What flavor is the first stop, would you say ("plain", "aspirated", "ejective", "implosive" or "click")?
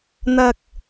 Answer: plain